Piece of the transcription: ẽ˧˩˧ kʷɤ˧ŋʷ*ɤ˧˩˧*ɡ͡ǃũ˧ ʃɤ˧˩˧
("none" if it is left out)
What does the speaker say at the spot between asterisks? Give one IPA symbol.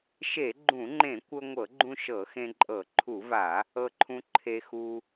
ɤ˧˩˧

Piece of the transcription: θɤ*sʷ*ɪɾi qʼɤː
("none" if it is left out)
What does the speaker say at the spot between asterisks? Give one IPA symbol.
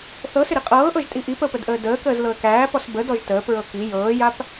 s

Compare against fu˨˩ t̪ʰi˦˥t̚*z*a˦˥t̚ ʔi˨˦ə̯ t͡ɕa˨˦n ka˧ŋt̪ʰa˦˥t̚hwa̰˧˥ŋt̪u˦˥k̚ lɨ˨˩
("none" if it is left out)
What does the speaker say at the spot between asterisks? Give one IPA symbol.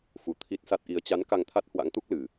s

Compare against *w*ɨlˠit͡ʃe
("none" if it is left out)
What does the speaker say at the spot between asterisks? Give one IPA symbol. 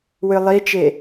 w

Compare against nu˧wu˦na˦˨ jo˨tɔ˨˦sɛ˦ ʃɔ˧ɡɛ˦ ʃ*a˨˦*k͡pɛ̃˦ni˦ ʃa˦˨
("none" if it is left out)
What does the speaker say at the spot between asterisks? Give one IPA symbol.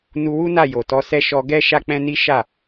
a˦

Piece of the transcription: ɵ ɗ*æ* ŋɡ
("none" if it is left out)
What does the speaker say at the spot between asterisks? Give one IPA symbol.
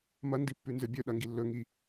ɐ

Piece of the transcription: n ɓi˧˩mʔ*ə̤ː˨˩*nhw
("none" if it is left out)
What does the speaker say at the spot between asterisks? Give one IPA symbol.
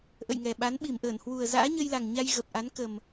əː˧˩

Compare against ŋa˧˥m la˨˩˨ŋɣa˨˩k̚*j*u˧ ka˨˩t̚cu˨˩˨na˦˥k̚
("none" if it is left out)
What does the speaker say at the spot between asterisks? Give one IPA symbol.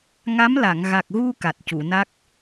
ɣ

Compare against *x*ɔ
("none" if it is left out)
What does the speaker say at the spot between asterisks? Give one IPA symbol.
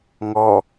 ŋ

